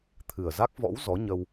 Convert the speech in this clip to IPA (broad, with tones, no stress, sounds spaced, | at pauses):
t̪ʰ ɨ˨˩ ə̯ z a˦˥ k̚ v ɔ̰˧˥ w z ɔ˨˦ ɲ ə˧ w